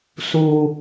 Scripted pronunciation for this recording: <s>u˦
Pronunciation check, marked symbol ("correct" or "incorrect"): correct